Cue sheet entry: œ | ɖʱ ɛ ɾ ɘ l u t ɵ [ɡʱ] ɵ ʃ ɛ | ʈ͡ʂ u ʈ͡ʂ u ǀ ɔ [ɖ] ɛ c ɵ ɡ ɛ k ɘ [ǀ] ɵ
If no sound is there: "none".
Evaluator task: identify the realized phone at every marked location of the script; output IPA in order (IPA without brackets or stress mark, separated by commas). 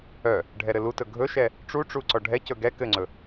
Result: ɡʱ, ɖʱ, ŋ͡ǀ